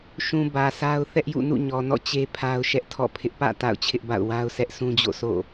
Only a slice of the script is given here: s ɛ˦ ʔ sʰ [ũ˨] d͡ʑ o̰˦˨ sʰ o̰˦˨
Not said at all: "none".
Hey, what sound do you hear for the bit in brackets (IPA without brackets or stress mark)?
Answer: ũ˦